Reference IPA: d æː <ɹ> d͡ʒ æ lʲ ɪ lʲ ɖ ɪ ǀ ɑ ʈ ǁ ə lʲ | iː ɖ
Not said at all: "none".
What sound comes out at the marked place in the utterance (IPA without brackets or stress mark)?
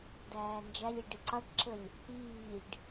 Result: n